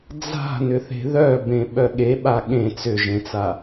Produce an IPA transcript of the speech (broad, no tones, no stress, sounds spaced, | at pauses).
d͡z a̤ n ʏ θ e̤ ð œ b ẽ ɓ œ ɠ e ɓ a ɠ ẽ t͡s ʏ ʒ ẽ t͡s a